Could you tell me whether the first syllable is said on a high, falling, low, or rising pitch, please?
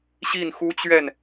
falling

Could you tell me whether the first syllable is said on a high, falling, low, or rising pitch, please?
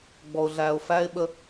low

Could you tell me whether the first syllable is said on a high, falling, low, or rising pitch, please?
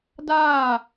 falling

